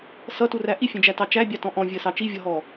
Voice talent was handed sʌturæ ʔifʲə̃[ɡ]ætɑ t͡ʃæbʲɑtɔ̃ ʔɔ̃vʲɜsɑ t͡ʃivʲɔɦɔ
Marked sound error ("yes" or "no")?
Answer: yes